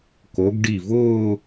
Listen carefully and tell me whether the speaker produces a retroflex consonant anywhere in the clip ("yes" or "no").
yes